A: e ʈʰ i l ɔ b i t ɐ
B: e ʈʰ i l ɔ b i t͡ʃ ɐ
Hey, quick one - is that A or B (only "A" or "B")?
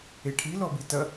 A